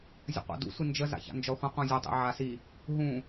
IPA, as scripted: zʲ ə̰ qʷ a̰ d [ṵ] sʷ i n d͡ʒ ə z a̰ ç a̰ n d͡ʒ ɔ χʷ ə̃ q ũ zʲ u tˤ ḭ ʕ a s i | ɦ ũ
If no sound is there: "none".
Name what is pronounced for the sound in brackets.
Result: ṵ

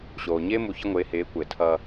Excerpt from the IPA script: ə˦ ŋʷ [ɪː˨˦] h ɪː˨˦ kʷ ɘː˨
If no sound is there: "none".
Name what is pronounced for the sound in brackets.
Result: ɪː˨˦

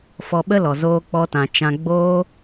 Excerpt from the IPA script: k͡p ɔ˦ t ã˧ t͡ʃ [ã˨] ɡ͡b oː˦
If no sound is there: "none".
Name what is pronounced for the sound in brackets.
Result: ã˧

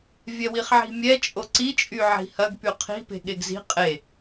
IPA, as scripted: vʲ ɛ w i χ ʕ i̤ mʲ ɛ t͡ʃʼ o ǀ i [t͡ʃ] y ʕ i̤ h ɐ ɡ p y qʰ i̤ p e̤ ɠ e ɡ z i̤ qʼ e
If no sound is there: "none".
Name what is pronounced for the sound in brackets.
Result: t͡ʃʼ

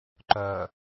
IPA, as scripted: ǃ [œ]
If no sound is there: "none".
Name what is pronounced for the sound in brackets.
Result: œ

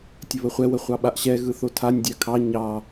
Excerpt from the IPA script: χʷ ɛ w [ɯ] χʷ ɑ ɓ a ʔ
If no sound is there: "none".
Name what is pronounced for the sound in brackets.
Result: ə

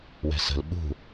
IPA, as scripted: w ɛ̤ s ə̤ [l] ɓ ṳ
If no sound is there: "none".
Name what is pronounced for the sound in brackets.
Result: l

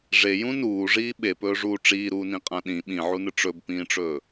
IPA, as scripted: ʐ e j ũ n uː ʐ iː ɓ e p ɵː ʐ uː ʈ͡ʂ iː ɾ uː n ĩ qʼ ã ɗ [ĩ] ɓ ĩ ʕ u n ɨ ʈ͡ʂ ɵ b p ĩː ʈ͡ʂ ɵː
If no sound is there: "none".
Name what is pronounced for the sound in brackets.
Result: ĩ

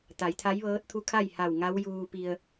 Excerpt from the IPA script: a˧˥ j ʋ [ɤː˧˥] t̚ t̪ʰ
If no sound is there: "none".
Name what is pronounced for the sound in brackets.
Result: ɤː˧˥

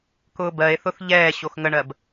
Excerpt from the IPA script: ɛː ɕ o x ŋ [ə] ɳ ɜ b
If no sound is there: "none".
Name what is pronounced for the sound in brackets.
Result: ə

